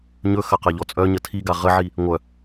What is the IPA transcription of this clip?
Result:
ɲ ɵ x ɐ q a ʎ ɔ t͡sʼ œ ɲ ə tʰ i ɡ a ʁ ə ʕ i | ŋʷ œ

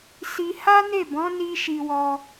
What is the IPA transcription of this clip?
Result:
s i˧ h a˦ n e˦˨ b ɔ̃˨˦ n i˦ ʃ i˧ w ɔ˧

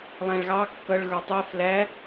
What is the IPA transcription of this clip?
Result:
lˠ æ̃ ɭ ɣ ɑ kː ʌ ɭ ɣ ə˞ tˤ ɛ f l æ

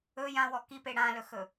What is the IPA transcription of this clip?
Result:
ɵ j ã w ɔ k i p e ɽ ã l ɵ x ɵ

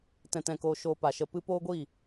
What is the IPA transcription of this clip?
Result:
t ɛ̃˧ t ɛ̃˧ k oː˧ ʃ oː˧ p a˨ ʃ ə˧ p ɨ˦ p oː˦ ɡʷ i˦˨

